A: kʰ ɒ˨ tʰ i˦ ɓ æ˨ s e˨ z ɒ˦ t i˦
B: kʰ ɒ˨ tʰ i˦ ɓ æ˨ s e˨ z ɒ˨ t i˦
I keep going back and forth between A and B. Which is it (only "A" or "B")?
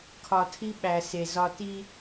A